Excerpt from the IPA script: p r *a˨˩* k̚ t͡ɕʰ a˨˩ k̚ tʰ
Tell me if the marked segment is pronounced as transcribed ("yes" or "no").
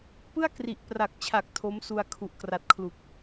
yes